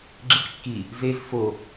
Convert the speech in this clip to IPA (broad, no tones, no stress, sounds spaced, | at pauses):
ɡ͡ǁ i q kː i | z e z f o